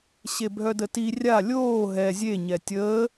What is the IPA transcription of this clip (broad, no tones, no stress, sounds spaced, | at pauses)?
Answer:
ɕ e bʱ œ d ə t i rʲ a lʲ oː ɦ ɛ zʲ e ɲ ɛ tʲ əː